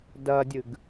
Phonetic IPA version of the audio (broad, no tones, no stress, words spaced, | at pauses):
dɐdʲɨɡ